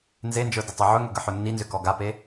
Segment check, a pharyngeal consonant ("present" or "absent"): present